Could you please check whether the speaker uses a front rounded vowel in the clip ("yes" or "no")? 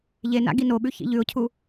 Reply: no